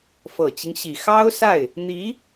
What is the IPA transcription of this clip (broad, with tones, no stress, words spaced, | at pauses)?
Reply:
fɤ˨˩t͡ɕi˦ŋɕi˨˩ xɑ˥ʊ̯sa˥˩ɪ̯ | n̪i˧˥